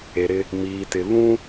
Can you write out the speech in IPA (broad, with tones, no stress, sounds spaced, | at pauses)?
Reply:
e˨ ɾ ɪ˦ | m iː˨ t ɪ˨ β ũ˦